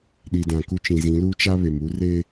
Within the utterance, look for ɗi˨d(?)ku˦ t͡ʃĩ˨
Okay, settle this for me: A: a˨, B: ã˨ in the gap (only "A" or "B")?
B